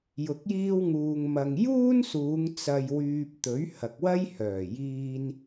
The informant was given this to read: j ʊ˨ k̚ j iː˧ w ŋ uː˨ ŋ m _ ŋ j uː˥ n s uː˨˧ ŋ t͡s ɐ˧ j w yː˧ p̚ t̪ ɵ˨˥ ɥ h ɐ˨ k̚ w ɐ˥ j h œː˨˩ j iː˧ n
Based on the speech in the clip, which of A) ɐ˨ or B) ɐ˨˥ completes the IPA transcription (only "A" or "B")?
A